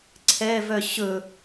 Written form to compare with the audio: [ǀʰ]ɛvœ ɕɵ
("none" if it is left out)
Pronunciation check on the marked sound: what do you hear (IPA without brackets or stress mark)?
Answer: ǀʰ